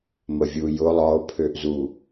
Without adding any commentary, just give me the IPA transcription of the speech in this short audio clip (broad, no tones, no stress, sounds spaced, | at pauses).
m ə vʲ u j ʊ lˠ ɒ o̯ pʰ ø ʔ z u